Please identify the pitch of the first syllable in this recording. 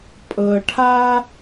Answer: low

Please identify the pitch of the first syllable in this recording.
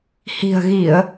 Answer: low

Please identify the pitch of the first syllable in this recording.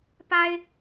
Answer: high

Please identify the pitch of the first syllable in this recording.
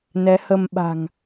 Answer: rising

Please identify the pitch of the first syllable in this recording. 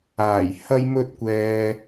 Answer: low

